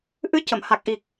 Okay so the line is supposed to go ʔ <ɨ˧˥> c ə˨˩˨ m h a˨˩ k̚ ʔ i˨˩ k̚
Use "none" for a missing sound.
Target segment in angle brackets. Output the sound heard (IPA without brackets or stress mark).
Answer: ɨ˧˥